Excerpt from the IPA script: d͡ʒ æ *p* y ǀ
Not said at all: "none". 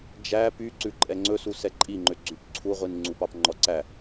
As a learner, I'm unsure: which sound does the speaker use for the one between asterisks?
p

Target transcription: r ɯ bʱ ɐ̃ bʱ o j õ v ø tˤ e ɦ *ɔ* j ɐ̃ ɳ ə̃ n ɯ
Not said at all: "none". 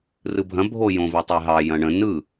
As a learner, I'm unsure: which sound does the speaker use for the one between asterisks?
ɑ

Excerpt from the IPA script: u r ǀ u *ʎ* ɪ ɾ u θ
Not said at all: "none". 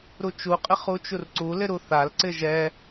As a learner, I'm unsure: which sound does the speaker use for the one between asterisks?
l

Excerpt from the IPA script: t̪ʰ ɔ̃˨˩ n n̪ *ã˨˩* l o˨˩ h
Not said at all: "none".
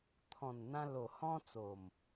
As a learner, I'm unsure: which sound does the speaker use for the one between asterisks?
ã˧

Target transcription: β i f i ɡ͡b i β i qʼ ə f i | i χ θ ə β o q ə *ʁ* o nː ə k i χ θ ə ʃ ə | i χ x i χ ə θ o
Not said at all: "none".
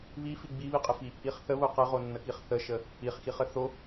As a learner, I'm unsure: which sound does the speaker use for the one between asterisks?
ʁ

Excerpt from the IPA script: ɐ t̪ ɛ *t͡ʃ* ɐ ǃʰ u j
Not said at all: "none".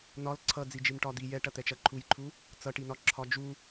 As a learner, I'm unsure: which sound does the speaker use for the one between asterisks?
t͡ʃ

